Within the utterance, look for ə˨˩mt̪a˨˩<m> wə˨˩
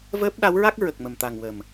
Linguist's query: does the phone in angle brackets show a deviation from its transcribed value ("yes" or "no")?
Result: yes